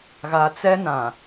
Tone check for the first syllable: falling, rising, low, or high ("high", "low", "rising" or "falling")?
low